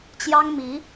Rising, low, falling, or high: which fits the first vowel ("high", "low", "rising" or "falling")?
high